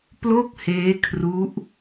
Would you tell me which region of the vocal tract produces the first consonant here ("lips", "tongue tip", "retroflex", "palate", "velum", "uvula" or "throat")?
lips